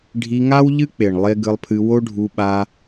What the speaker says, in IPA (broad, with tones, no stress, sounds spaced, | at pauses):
ɖʱ i˧ ŋ a˦ w ʎ ɨ˦ k͡p e˨ ɳ lˠ e˧ ɡ ɨ˧ lˠ pʰ ɨ˧ w o˦ ɖʱ u˧ ɓ a˧